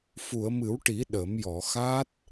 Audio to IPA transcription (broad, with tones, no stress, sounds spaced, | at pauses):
f u˨˩˨ ə̯ m ɨ˨˩˦ w ʈ i˨˩˦ ɗ ə˨˩˦ m j ɔ˨˩˨ x a˦˥ t̚